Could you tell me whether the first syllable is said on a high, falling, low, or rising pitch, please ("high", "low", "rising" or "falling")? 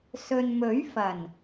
low